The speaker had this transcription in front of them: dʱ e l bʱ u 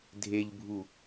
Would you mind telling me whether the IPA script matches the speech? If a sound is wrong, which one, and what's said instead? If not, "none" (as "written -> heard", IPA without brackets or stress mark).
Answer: l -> ʎ